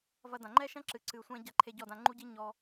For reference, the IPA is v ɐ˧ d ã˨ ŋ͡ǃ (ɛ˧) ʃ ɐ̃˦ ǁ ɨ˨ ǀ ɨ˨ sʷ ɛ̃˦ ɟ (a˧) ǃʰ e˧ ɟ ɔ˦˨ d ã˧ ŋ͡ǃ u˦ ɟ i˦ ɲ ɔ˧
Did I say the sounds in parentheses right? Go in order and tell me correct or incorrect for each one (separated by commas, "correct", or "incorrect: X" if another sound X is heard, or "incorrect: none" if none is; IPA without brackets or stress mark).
incorrect: ɛ˦, correct